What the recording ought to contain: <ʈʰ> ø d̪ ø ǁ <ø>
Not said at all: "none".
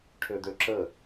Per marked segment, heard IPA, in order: ʈʰ, ə

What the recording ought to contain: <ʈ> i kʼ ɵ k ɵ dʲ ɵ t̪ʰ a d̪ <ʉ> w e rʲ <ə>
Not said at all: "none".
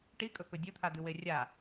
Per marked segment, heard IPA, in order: ʈ, ʉ, a

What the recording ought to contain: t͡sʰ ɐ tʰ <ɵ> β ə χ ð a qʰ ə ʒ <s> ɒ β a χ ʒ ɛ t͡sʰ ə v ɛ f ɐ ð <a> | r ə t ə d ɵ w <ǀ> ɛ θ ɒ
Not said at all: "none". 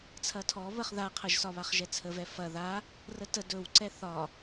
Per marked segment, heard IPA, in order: ɔ, s, a, ǀ

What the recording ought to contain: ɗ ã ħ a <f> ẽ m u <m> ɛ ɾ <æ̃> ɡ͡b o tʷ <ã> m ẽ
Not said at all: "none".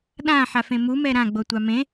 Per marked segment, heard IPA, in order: f, m, ã, a

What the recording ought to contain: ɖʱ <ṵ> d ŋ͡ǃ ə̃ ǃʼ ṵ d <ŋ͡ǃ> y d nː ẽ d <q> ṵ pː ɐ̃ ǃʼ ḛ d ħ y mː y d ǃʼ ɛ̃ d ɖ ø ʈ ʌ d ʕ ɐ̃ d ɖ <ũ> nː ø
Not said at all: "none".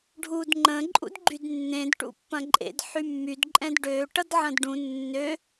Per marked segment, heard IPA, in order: u, ɡ͡ǃ, ʈ, ũ

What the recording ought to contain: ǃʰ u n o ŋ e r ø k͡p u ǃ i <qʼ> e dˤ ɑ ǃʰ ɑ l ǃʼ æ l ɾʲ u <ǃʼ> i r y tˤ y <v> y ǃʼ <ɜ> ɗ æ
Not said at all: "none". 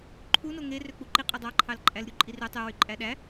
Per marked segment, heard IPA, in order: qʼ, ǃʼ, w, æ

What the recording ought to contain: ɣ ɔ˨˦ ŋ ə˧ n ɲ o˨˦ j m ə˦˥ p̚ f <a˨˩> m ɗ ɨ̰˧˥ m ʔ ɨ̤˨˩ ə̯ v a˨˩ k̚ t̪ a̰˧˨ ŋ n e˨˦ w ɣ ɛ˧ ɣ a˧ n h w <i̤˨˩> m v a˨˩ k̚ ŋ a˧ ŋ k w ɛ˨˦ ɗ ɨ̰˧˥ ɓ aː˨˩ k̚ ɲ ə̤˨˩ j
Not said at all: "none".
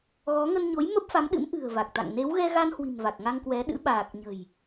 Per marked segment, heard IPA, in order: a˨˦, i̤˨˩

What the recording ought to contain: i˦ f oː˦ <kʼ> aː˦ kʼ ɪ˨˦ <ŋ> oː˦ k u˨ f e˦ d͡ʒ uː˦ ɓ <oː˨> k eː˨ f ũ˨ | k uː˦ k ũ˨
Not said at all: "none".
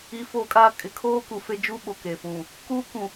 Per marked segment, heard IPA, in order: kʼ, kʰ, o˨

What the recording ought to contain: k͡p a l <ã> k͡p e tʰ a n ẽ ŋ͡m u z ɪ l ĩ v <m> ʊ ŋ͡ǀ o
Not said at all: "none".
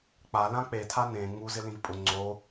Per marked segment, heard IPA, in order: ã, pʼ

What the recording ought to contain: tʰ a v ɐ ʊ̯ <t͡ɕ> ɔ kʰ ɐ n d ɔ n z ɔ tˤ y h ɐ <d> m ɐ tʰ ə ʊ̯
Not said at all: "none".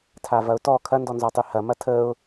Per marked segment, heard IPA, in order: t, none

